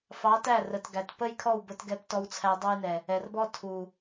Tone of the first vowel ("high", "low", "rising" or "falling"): rising